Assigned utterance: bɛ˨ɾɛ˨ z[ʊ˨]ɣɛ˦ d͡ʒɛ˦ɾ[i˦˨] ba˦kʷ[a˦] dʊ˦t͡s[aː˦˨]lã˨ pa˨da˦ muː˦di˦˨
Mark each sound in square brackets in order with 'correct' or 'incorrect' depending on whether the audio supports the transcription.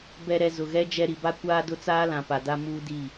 correct, incorrect, incorrect, incorrect

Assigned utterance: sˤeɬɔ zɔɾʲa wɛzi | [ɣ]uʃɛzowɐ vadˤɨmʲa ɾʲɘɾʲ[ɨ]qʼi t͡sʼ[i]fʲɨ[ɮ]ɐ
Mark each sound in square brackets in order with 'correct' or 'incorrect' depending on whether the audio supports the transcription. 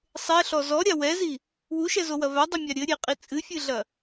incorrect, incorrect, incorrect, correct

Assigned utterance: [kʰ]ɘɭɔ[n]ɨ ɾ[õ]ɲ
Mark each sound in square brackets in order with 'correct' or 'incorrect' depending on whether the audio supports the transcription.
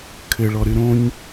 correct, incorrect, correct

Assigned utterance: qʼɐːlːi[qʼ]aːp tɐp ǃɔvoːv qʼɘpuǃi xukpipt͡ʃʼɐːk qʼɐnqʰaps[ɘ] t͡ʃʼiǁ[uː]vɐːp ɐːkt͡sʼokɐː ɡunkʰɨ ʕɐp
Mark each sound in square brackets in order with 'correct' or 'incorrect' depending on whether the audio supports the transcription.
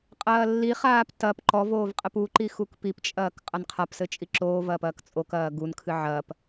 incorrect, correct, incorrect

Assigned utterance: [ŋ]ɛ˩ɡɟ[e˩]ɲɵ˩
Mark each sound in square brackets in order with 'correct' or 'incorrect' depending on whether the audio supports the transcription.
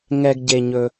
correct, correct

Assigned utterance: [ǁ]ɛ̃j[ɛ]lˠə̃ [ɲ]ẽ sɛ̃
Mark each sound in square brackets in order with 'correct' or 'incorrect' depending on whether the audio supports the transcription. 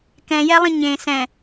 incorrect, correct, correct

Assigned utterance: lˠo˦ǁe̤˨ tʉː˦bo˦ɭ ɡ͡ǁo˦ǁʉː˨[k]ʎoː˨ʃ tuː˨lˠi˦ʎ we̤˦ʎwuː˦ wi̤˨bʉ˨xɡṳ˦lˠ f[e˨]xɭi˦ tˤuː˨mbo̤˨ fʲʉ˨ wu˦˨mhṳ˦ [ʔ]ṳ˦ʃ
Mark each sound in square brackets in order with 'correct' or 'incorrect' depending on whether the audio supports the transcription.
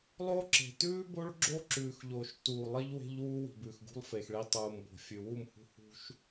incorrect, correct, incorrect

